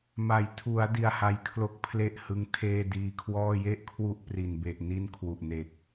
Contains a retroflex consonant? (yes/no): no